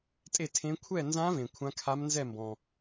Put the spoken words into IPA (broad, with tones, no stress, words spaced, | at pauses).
tʼe˥˧tʰẽ˦˥ kʷʰɛ˥˧nzã˦˥vẽ˨ kʷʰã˦˥kʰa˦˥mnzɛ˥˧mbɔ̃˨